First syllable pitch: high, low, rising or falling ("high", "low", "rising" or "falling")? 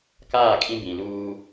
falling